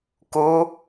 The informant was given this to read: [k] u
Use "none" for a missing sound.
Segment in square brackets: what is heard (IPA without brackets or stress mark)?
k